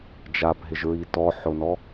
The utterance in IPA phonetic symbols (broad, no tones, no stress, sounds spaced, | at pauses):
d͡ʒ a b ɦ ɪ ʒ ɹ i t ɔ ħ ʊ n ɔ